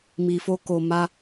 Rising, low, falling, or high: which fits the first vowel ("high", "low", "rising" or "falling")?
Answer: low